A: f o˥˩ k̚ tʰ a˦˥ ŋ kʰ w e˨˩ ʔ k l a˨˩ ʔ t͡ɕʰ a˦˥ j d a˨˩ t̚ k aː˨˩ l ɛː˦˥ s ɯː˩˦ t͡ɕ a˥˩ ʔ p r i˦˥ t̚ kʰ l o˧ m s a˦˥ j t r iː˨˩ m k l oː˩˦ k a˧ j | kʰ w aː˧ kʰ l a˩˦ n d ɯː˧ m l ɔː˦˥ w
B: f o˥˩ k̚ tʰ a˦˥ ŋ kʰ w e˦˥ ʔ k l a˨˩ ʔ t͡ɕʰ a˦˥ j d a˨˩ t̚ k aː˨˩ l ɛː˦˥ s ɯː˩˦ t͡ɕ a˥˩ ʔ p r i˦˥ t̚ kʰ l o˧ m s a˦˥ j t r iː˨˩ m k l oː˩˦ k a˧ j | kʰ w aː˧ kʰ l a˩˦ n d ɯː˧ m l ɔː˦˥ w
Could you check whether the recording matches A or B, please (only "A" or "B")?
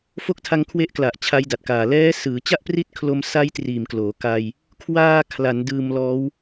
B